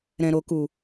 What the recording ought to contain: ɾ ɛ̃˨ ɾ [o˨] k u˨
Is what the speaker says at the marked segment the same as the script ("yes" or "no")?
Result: yes